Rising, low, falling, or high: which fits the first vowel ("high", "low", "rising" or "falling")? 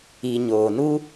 low